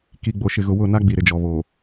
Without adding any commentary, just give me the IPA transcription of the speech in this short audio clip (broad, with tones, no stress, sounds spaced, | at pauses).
k i˨ ɡ͡b o˨ ʃ ɪ˨ ɣ ʊ˨ w ʊ˦˨ n a˦ ɡ͡b i˨ ɾ ɪ˨ d͡ʒ ɔ˨ β o˨